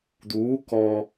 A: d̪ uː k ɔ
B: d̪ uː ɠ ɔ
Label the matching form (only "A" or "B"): A